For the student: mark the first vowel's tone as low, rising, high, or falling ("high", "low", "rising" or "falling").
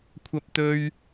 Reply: high